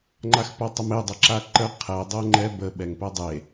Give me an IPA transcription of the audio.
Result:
ŋ͡ǃ a x p o tˤ ə m e dˤ ɘ ǁ a ǃ ə qʰ ɛ dˤ ɘ ŋ͡ǃ ɛ b ə ɓ ɛ ŋ p ɛ dˤ e

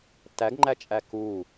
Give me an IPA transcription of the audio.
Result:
t æ ɡ ŋ͡ǃ æ t͡ʃʼ æ k u

